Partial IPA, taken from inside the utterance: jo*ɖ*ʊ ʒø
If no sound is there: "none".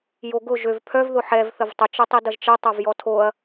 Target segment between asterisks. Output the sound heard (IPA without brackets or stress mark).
ɡ